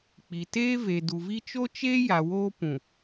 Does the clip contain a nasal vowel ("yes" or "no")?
yes